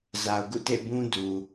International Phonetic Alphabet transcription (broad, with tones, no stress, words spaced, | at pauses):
za˨ʊ̯ɡṵ˦˨ tḛ˦˨bũ˦ du˨